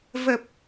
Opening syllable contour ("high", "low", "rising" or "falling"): low